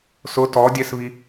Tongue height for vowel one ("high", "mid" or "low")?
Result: high